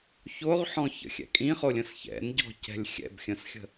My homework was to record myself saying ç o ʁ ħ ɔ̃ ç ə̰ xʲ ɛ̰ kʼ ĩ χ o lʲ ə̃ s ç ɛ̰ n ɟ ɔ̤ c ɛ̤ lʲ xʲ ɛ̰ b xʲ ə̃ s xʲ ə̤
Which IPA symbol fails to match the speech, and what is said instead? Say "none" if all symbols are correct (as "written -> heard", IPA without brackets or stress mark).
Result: none